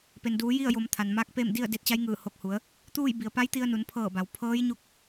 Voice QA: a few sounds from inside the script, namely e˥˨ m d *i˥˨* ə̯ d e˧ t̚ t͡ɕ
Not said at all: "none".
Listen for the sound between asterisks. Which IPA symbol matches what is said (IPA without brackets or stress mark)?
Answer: i˥˨